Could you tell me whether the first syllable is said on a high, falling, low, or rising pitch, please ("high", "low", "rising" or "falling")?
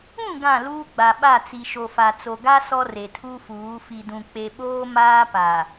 falling